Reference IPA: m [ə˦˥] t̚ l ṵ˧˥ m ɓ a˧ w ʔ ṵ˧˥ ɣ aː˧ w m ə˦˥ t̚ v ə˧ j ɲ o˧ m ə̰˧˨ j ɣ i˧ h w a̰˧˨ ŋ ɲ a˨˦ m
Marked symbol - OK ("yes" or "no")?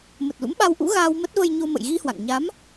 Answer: no